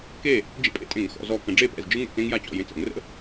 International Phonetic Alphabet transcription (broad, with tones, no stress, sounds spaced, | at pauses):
k e˥˩ | d͡ʒ ḛ˥ pʼ ḛ˥ tʼ ẽ˧˩˧ ŋ x ɔ̰˧˩˧ z ɔ˧˩ k ə̃˧˩˧ ɖ͡ʐ e˥˩ p ɛ̰˥˩ z d͡ʒ ɯ˥ ŋ ɛ̰˥˩ t͡s ẽ˥ ŋ j a˥˩ t͡ɕ ɔ̰˧˩ j ẽ˧˩ t͡s ə̰˧˩˧ ŋ r ə̰˥